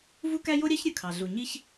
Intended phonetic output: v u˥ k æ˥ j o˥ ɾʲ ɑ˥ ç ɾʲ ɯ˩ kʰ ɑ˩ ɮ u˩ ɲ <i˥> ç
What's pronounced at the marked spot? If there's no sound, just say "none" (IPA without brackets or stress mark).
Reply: i˥